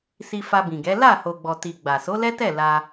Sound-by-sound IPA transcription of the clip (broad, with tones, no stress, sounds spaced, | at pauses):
s i˧ f a˧ b ĩ˨ ɡ ɛ˨˦ l a˦˨ h o˨ ɡ͡b ɔ˨ t i˨ ɡ͡b a˨ s o˨˦ l ɛ˦ t ɛ˦˨ l a˧